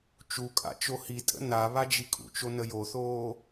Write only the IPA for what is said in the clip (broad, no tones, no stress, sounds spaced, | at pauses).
t͡ʃ u kʼ a̰ t͡ʃ o h i tʼ ə̰ n a β a d͡ʒ i kʼ ṵ t͡ʃ o n ə j o θ oː